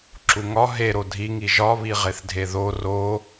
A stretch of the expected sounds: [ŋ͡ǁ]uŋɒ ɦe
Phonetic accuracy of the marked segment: incorrect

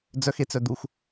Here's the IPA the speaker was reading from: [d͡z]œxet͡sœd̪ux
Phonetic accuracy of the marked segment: correct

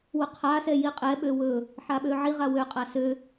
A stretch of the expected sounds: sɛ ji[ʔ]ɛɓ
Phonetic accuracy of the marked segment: incorrect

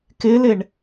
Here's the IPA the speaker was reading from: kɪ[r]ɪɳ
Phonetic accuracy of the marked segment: incorrect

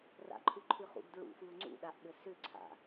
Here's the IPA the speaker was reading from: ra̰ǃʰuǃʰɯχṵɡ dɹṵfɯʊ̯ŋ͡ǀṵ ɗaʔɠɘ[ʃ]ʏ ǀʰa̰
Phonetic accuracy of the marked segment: incorrect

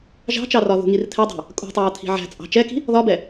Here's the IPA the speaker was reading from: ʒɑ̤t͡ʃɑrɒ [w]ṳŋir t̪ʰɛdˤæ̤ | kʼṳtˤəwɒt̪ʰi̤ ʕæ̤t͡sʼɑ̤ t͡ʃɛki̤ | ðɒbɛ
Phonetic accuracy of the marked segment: incorrect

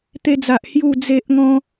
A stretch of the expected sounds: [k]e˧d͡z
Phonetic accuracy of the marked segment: incorrect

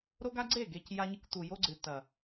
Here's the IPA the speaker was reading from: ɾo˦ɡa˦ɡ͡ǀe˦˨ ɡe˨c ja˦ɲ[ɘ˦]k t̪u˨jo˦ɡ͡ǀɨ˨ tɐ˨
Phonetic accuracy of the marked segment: correct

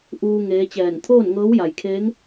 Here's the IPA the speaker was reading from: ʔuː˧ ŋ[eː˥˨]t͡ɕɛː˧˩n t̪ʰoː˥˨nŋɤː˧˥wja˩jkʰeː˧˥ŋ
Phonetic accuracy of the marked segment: incorrect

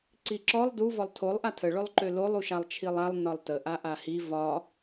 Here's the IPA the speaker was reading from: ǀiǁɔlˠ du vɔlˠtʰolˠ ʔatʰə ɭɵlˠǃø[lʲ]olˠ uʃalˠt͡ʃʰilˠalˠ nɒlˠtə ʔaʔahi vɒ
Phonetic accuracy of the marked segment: incorrect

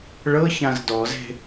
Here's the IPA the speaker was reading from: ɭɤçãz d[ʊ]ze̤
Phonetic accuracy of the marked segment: incorrect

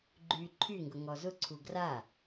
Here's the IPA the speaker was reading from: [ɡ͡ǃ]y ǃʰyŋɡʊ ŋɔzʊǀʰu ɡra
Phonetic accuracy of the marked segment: correct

